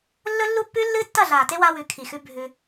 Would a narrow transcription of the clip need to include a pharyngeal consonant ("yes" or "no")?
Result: no